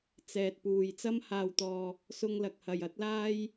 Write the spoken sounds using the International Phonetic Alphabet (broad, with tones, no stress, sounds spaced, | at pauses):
t͡s ɛː˨ t̚ p uː˨ j t͡s ɐ˧ m h aː˨ w t̪ ɔː˨ | s ʊ˧ ŋ l ɐ˨ k̚ h ɐ˨ j ɐ˨˥ t̚ l aː˥ j